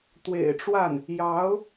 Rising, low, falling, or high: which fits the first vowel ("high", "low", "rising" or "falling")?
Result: low